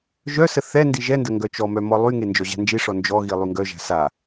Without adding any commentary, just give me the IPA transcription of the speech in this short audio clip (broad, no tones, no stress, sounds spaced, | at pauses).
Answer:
ʒ œ s ə θ ɛ n d i ʒ ɛ n d ə ŋ ɡ œ t͡ʃ ɔ m œ m ɔ lˠ y ŋ e n d͡ʒ ɔ ʑ a̤ n d͡ʒ i ʂ ɔ n d͡ʒ ɔ ɣ i lˠ y ŋ ɡ œ ʒ a̤ s a